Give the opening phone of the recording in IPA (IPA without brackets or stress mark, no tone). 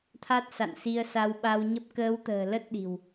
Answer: t̪ʰ